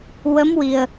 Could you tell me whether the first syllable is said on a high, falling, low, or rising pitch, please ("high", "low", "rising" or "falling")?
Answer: rising